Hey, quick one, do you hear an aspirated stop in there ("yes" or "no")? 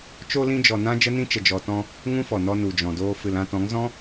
no